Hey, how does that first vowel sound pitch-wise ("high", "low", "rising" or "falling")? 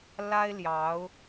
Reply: high